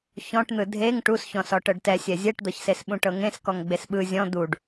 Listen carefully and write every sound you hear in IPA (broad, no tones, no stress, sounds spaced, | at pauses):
ç ɔ̃ ʈ n̪ ɯ dʱ e ŋ ʈ u s ç ɔ̃ s ɔ ʈ ɤ ɖ t ɛ sʲ ɛ zʲ ɛ ʈ d̪ ɤ ç s e s ɓ ũ ʈ ɤ ŋ ẽ s k ɔ ŋ ɡ͡b e s ɓ ɯ zʲ ɔ̃ d̪ u ɖ